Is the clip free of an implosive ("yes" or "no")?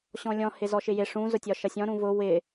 yes